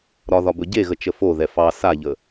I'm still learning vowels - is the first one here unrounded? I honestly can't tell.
no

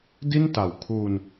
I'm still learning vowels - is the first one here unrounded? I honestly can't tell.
yes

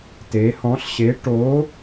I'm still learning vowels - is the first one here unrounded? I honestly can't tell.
yes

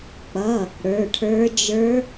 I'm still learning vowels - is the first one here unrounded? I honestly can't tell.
yes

